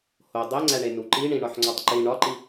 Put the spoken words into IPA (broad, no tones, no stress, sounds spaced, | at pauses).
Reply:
h o dˤ e ŋ͡ǀ æ ɳ e n u ǃ i ɳ ĩ ɳ ɒ ħ ŋ͡ǀ ɒ tˤ ǃ i ɳ ɒ ǃ i